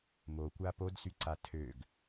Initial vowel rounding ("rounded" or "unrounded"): rounded